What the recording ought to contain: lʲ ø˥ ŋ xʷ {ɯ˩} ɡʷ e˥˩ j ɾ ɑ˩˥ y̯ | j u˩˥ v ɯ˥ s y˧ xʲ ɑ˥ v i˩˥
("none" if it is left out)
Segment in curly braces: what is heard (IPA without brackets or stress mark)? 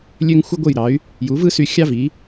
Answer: ɯ˥